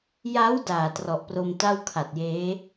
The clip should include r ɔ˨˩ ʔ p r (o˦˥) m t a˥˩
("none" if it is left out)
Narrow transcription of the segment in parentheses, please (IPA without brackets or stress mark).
o˧